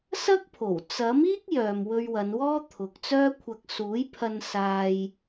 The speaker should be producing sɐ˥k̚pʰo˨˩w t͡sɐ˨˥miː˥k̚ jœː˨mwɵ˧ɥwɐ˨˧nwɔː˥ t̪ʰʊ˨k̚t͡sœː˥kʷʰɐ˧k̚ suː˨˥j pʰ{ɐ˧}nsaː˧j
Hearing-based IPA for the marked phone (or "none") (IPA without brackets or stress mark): ɐ˧